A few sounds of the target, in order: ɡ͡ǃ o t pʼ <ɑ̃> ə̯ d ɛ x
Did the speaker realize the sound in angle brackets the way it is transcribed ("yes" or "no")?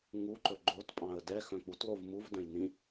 yes